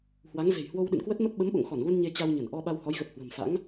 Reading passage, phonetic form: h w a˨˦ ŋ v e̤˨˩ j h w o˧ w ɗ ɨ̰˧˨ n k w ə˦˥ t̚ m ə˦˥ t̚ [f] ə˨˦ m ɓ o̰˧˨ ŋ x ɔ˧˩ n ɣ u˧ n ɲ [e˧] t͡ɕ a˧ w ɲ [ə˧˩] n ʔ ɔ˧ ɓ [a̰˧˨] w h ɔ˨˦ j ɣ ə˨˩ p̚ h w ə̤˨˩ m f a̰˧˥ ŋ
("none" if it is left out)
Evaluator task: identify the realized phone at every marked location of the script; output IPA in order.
ɓ, e˧, ə˧˩, a˧

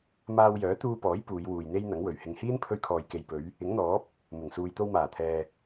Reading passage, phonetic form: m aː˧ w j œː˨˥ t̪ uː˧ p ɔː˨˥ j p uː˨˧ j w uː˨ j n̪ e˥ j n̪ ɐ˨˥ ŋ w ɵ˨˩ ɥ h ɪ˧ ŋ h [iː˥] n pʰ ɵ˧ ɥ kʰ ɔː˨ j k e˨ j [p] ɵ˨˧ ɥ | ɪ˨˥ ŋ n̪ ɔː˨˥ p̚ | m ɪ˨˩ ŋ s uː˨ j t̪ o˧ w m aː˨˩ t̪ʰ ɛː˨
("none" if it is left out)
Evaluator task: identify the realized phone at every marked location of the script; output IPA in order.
iː˥, p

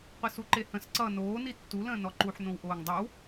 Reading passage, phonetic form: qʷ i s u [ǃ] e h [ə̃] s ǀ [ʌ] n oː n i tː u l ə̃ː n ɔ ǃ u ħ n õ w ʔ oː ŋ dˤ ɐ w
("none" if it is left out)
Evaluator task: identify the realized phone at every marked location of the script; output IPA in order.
ǃ, ə̃, ʌ

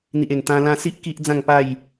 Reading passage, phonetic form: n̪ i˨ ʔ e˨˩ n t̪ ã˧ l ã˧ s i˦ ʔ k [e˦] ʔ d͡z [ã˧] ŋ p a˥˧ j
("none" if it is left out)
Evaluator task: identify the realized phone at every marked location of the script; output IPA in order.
i˦, ã˥˧

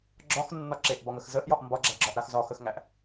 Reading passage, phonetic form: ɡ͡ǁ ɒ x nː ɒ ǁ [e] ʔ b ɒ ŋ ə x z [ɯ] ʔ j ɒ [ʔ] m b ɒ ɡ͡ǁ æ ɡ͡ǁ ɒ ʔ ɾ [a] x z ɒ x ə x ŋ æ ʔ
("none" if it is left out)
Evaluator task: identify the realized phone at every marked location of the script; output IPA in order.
e, ə, ʔ, a

